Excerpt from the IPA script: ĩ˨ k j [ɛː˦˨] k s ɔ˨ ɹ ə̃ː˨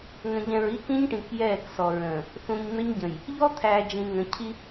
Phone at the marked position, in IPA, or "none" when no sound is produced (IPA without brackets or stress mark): ɛː˦˨